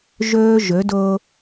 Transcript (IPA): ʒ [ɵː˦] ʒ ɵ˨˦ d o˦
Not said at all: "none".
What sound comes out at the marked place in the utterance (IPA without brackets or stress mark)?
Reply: ɵː˦